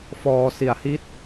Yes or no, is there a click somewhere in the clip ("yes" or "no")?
no